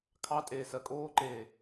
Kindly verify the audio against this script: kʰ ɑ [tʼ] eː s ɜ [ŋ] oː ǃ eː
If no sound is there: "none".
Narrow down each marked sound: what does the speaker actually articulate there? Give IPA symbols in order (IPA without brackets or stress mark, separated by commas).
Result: tʼ, kʼ